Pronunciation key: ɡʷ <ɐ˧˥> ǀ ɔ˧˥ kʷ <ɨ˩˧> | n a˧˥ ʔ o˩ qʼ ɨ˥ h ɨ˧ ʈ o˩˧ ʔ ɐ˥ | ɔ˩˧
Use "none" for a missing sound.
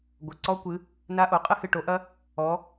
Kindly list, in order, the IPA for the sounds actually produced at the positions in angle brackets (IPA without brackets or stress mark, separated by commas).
ɐ˩, ɨ˩˧